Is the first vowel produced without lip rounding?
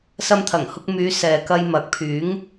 yes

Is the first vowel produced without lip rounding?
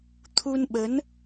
no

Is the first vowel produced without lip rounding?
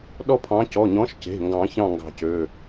no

